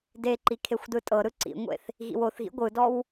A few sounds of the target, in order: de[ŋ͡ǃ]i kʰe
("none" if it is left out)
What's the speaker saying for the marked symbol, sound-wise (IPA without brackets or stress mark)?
ǃ